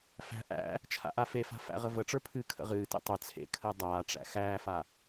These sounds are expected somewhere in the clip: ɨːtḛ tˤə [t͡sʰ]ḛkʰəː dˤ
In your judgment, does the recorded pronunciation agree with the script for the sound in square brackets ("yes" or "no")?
yes